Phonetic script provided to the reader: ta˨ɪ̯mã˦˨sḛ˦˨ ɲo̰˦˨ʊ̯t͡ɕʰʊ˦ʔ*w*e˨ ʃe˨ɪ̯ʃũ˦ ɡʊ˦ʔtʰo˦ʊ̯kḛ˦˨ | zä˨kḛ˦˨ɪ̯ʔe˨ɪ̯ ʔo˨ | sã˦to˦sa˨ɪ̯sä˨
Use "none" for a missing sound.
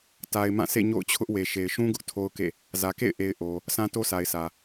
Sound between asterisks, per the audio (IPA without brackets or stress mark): w